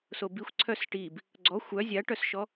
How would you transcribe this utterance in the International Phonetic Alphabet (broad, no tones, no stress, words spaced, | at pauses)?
sobixʷ ǀʰœsʈib | ɡ͡ǀɔ xʷœ zʲaʈœsʃɔ